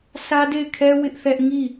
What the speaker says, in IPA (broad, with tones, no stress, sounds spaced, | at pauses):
s ä˦ d e˦˨ ɪ̯ kʰ ɛ˦ w ɪ˦ ʔ θ ɛ˦ ʔ ŋ i˦˨